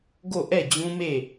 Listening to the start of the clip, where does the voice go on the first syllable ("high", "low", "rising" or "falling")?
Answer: falling